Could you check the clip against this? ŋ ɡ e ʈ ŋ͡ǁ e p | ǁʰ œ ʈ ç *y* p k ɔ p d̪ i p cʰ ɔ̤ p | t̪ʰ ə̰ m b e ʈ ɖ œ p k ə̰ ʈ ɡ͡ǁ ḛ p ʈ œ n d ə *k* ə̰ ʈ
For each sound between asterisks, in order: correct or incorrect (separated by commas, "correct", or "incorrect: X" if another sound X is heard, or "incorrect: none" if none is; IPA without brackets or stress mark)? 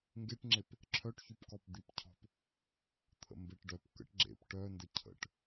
correct, incorrect: cʰ